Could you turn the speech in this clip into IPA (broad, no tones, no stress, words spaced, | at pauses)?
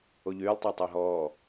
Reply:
oʎyːlˠ tˤɑtˤɑɦɔː